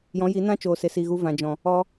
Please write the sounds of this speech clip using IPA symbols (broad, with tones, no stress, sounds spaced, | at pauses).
j ɔ̃˨˦ j i˨˦ n ã˦ t͡ʃ oː˨ s e˨ s i˨ ɣ u˧ v ã˨ d͡ʒ ɔ̃˨ | ɔ˧